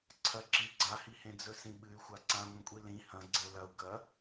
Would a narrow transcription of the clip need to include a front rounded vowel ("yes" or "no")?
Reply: yes